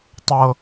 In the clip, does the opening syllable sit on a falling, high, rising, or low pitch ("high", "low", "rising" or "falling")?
high